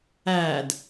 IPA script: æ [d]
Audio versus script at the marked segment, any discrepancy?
no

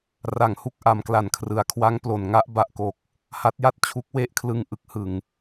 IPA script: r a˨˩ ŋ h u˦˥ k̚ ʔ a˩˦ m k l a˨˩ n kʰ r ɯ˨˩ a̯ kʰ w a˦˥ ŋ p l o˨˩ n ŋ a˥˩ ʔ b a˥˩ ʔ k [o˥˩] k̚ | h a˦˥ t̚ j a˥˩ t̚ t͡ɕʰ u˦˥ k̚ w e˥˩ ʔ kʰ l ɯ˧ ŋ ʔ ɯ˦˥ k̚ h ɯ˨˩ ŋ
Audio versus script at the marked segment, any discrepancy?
yes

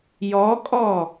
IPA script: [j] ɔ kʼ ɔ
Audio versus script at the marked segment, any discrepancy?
no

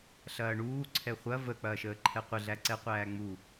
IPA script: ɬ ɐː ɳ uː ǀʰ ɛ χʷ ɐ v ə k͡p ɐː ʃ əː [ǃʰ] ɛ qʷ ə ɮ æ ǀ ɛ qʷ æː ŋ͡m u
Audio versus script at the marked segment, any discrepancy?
no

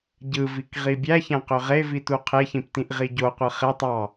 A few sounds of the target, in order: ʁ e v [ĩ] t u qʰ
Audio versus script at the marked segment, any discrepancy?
yes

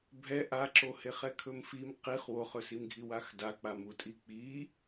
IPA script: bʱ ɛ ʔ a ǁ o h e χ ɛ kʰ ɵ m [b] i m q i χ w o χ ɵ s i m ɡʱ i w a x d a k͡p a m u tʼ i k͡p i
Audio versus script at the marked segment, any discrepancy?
yes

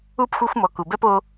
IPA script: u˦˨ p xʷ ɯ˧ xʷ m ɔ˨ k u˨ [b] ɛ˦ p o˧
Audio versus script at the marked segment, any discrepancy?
no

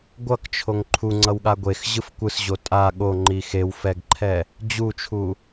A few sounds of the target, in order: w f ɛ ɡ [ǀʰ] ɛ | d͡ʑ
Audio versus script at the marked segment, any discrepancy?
yes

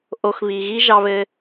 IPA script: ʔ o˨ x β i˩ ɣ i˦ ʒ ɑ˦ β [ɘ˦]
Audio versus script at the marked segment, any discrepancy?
no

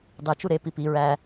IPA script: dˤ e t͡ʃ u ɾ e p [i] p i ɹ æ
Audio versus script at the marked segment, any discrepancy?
no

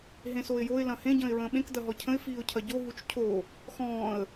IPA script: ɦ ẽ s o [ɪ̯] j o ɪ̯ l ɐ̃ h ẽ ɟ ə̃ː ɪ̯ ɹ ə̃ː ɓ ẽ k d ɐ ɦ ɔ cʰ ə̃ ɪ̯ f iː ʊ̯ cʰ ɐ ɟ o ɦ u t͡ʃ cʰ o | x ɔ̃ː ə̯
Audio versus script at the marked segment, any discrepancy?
no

